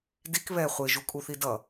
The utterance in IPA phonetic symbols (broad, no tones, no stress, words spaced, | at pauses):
dik βɛ χʷeʒukʼuθi dʌ